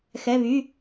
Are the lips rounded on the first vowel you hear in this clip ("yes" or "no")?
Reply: no